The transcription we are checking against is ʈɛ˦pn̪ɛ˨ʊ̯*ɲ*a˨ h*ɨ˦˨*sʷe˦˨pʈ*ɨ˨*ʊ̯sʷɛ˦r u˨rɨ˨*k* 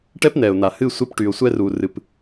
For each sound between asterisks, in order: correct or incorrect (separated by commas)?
incorrect, correct, incorrect, incorrect